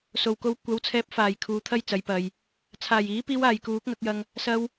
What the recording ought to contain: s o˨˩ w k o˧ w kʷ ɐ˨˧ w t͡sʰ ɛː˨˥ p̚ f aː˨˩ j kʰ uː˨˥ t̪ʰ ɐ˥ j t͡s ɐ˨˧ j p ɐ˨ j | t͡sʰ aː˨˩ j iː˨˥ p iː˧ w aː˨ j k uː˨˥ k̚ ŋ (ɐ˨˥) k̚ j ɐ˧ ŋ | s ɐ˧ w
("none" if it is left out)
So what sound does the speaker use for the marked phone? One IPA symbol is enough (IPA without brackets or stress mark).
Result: ɐ˨˥